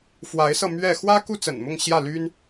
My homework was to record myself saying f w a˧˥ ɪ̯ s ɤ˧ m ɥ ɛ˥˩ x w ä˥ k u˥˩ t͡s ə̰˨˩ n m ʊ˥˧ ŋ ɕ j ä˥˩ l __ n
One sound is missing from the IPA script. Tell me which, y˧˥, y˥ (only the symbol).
y˥